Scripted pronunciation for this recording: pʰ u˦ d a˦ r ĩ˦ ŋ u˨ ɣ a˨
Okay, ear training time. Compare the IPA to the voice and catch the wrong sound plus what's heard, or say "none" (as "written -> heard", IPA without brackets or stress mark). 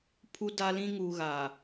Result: r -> l